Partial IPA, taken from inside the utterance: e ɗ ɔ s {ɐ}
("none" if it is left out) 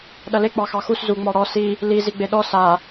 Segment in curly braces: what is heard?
a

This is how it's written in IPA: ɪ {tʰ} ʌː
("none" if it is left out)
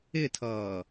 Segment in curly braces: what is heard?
tʰ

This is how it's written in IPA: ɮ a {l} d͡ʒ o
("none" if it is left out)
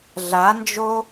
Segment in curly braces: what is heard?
n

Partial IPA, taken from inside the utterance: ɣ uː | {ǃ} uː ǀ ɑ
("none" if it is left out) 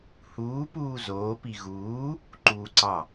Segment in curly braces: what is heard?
ǃ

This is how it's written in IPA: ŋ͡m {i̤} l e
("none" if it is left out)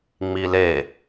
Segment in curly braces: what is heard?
i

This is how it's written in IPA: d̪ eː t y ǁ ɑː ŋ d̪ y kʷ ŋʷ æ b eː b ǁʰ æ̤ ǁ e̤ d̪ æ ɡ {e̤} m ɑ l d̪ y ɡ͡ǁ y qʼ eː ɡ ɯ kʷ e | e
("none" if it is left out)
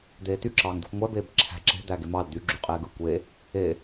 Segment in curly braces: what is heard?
e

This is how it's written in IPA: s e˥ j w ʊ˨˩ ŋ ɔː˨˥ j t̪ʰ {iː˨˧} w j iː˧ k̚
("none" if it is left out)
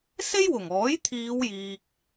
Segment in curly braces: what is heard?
iː˨˧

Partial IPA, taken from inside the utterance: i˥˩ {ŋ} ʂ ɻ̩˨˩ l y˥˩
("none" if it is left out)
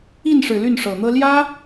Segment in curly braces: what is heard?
n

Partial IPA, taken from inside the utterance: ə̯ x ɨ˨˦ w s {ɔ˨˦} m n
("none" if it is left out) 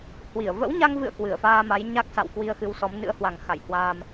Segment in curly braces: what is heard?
ɔ˨˦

